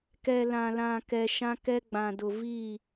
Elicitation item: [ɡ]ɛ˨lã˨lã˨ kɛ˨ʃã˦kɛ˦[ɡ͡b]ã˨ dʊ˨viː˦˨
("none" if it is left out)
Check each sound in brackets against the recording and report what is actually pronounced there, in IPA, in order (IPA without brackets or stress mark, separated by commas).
k, ɡ͡b